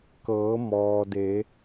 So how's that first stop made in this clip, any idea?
plain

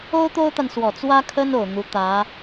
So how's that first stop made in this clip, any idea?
plain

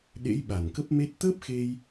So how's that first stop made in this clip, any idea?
implosive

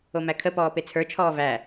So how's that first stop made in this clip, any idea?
aspirated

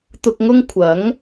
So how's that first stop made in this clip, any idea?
plain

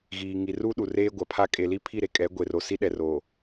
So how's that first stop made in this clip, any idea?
implosive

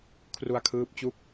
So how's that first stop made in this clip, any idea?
aspirated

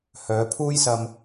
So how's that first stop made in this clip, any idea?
aspirated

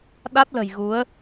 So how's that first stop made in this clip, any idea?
implosive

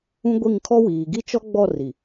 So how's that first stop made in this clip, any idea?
plain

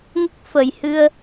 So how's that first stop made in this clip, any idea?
plain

